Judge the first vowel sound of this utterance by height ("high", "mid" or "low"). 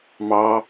low